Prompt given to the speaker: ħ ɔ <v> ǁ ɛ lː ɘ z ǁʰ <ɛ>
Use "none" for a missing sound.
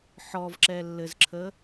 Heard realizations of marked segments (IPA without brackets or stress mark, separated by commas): v, ə